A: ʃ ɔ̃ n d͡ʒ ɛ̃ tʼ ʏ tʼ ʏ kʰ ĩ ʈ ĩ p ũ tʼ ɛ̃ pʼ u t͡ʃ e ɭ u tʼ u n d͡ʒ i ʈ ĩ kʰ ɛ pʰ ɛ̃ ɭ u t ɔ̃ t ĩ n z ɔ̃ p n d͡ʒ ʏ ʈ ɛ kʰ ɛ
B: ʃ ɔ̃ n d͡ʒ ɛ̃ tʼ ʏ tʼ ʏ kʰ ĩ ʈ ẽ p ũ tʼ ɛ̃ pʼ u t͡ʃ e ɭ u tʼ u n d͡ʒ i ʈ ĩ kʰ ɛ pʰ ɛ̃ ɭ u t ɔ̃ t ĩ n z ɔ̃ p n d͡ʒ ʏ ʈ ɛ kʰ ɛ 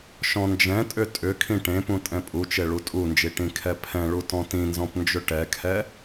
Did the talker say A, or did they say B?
B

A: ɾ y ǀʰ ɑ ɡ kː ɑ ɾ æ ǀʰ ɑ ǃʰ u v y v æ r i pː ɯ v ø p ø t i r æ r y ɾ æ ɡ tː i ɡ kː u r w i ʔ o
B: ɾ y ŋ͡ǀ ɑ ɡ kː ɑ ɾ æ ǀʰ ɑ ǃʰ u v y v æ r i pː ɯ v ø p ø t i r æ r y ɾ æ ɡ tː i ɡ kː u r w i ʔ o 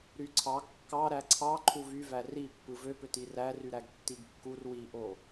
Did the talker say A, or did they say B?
A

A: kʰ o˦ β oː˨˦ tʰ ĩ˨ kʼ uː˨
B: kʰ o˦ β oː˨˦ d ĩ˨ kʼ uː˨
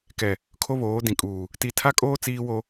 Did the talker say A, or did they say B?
B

